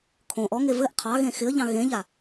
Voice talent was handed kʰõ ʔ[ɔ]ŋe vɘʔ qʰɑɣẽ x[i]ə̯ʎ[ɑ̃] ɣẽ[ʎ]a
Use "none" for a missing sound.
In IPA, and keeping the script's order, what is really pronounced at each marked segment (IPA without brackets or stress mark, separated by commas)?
ɔ, ɪ, ɑ̃, ʎ